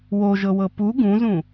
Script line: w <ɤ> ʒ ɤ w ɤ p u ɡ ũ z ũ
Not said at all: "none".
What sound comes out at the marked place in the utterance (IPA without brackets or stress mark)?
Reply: o